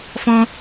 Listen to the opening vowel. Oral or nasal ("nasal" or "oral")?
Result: nasal